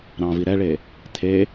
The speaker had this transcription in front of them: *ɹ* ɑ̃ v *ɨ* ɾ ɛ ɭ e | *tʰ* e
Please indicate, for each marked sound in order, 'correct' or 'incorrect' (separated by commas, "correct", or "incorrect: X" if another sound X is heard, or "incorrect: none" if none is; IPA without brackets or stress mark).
incorrect: ɾ, incorrect: i, correct